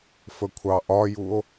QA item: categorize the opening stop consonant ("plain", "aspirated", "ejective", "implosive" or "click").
aspirated